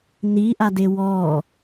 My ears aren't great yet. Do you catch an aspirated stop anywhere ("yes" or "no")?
no